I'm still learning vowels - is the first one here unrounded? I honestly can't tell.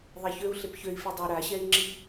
yes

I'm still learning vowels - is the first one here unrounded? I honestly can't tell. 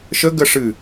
yes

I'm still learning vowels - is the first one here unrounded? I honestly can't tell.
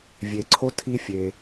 yes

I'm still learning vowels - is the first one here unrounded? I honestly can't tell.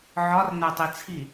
no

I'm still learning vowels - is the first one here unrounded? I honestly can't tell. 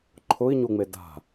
no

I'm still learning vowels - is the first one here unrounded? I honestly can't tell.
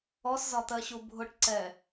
no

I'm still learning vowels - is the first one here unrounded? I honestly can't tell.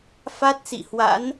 yes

